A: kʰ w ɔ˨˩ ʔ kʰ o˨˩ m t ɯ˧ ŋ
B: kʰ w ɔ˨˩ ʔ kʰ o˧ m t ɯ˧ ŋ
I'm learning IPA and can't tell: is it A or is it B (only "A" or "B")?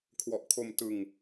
B